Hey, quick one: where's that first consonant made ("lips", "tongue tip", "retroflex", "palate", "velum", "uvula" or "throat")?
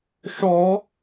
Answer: retroflex